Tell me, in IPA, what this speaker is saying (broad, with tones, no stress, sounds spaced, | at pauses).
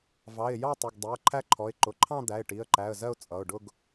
v ɑ˩˧˩ ɪ̯ j ɑ˥˧ tˤ ʊ˩˧˩ ɡ dˤ ɛ˩˧˩ ə̯ ǃʰ æ˥˧ ǃʰ ɔ˩˧˩ ɪ̯ ǃ ʊ˩˧˩ ǃʰ ɑ̃˥˧ d̪ æ˩˧˩ ɪ̯ ʈ i˩˧˩ ə̯ ǃ æ˩˧˩ ə̯ z ɜ˥˧ ʊ̯ t͡sʼ ʌ˩˧˩ ʊ̯ ɖ ʊ˥˧ ɡ